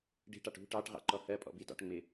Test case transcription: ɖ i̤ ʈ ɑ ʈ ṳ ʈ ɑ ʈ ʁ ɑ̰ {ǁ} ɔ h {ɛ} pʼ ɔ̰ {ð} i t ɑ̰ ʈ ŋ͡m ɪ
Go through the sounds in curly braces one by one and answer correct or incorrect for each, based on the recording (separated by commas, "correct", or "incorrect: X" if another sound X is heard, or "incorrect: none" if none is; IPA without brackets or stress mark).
incorrect: ǃ, incorrect: ɜ, incorrect: b